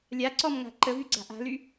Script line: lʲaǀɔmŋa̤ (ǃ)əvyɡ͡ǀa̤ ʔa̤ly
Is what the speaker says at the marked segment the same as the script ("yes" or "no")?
yes